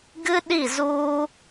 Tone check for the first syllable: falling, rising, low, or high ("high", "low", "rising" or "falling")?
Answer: high